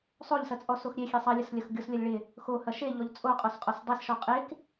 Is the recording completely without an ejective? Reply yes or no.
no